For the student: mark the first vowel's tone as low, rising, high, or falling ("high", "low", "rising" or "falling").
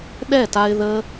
falling